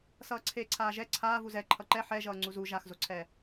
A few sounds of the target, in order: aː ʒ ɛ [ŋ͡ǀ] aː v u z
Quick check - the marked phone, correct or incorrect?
incorrect